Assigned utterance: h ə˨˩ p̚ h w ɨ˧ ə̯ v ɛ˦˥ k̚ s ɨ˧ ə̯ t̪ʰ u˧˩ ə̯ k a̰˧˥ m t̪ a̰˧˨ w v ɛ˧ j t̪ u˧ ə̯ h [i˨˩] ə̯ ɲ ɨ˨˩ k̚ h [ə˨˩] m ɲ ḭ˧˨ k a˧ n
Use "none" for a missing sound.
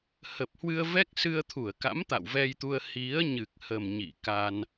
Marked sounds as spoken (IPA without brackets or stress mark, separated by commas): i˨˦, ə˨˩